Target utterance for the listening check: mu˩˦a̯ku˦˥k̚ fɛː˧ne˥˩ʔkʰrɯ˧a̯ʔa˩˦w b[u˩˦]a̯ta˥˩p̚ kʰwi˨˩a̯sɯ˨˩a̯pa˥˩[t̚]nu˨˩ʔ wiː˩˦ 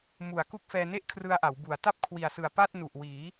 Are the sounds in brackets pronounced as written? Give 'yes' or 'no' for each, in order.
yes, yes

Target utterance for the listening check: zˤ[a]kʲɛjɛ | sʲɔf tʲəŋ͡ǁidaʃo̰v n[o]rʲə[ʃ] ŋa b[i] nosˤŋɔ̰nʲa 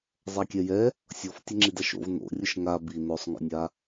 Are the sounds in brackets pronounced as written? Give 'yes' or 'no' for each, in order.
yes, no, yes, yes

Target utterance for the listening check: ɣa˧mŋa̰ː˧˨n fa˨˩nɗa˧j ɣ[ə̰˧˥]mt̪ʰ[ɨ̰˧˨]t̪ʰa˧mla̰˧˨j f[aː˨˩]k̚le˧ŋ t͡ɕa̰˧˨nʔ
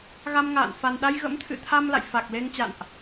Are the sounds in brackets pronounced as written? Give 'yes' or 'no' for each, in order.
yes, yes, no

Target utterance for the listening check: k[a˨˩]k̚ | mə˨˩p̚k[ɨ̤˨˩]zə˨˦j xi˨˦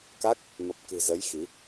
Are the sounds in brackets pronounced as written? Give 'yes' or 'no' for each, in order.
no, yes

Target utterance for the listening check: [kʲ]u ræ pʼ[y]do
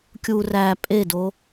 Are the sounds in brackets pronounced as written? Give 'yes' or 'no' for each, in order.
yes, no

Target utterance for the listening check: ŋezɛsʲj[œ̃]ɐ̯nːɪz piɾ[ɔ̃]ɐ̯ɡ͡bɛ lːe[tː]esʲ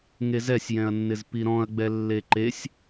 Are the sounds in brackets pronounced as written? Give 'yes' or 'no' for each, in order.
no, yes, no

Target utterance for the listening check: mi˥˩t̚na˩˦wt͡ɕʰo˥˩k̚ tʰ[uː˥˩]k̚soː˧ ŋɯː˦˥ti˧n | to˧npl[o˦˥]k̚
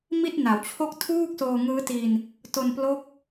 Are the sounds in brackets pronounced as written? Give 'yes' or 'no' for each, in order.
yes, yes

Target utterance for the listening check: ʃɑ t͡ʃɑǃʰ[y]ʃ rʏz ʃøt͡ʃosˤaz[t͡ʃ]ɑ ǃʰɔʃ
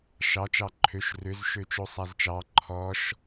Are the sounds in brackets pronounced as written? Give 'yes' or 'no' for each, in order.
no, yes

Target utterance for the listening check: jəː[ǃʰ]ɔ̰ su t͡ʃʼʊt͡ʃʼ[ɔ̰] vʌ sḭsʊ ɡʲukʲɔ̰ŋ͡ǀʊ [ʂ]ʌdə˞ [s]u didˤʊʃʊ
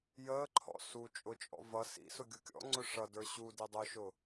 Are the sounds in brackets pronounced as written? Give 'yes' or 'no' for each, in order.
yes, yes, yes, no

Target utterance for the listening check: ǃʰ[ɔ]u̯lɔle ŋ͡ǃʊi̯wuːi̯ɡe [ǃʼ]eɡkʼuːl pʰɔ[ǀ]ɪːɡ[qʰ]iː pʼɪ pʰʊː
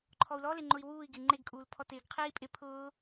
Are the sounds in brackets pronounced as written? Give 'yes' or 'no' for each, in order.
yes, no, no, yes

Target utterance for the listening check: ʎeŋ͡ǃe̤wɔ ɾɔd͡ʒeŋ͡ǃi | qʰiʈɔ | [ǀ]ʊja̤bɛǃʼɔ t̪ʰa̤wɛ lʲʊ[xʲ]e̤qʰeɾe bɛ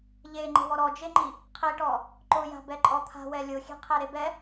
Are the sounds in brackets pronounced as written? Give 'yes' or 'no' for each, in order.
no, yes

